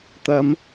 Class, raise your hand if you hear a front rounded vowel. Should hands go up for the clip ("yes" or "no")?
no